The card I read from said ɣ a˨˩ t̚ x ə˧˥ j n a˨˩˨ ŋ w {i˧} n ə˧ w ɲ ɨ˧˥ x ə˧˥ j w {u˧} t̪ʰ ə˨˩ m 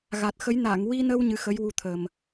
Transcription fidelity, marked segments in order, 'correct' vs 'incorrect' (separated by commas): correct, correct